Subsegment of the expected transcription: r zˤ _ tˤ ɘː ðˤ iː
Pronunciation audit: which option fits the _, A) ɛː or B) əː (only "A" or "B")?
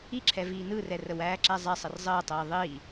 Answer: B